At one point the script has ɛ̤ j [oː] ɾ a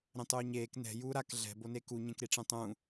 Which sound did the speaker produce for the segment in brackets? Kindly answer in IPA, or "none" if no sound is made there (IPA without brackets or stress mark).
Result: uː